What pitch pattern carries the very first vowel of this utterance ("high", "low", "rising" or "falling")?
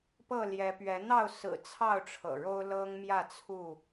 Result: falling